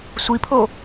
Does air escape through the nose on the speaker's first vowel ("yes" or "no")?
no